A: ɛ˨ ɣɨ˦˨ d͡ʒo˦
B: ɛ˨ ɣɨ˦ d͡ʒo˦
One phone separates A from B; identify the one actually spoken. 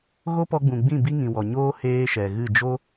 A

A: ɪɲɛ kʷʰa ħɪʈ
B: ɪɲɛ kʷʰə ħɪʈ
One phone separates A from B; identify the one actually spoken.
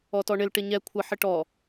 B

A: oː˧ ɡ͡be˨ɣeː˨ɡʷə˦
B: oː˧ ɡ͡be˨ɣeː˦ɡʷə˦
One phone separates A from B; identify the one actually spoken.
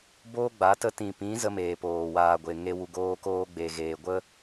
A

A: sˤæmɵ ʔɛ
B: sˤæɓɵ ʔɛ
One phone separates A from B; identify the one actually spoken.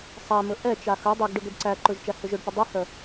A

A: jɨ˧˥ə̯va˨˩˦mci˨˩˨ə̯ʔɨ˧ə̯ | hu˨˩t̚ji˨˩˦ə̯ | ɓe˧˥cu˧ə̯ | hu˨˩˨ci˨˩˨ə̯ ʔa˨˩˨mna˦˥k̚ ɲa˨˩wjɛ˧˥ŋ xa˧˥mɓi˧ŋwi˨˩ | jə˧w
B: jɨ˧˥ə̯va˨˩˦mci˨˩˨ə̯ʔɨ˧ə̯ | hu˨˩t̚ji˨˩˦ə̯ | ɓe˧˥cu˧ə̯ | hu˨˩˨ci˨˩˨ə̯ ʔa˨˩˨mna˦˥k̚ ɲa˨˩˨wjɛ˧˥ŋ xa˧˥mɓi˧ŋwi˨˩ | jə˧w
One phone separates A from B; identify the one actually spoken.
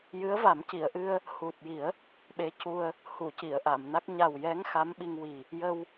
A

